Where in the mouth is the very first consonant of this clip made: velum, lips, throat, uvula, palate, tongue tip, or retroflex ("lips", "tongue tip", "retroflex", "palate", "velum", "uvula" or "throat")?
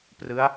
lips